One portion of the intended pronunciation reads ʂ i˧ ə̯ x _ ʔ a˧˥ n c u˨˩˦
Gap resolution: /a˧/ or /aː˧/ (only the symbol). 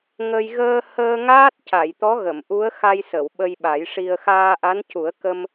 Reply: aː˧